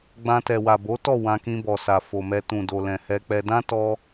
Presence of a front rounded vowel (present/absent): absent